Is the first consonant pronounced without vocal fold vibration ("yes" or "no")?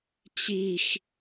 yes